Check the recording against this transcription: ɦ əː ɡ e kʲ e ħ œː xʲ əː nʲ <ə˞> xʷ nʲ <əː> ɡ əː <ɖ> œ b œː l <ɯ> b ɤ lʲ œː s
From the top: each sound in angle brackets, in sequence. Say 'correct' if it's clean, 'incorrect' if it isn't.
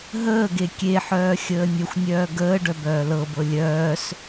incorrect: ə, incorrect: œː, correct, incorrect: ɤ

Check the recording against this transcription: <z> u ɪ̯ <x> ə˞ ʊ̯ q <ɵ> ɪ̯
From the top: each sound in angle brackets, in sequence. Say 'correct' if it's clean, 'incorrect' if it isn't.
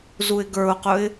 correct, incorrect: ɡ, correct

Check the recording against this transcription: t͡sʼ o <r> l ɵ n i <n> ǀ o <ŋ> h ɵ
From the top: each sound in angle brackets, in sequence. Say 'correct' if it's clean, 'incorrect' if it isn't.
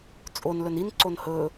incorrect: n, correct, incorrect: n

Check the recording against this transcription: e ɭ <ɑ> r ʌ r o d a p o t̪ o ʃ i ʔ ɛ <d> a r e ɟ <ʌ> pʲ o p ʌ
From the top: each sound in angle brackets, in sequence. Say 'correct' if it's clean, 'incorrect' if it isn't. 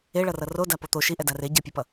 incorrect: ʌ, correct, correct

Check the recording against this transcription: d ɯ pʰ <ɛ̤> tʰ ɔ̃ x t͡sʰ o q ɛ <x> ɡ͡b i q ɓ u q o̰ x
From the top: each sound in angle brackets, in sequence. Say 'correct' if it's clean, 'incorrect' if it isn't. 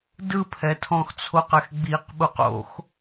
incorrect: ɛ, correct

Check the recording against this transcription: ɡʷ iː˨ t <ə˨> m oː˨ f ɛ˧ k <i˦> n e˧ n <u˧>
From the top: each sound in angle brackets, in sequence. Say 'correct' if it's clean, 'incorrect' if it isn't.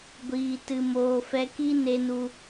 incorrect: ɨ˨, correct, correct

